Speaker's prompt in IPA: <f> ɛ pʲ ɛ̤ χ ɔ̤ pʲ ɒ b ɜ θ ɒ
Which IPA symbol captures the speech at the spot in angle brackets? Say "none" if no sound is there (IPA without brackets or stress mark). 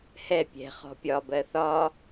h